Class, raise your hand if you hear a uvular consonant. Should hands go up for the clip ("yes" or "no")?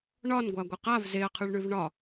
yes